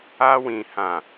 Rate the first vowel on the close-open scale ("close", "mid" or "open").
open